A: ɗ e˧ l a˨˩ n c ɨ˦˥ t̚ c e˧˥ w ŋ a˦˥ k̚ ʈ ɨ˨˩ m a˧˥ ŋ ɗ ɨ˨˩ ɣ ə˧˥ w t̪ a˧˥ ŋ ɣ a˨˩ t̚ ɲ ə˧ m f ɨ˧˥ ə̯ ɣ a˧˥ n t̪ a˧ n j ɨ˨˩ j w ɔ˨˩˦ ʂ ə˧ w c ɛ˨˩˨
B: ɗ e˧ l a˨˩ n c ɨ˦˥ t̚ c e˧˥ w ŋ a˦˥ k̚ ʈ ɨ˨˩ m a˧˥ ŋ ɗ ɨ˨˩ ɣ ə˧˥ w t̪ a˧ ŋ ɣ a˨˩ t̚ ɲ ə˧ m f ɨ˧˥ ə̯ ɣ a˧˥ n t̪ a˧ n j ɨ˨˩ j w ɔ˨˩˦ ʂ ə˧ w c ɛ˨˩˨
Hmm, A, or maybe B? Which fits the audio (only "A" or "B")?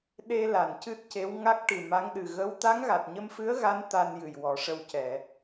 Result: A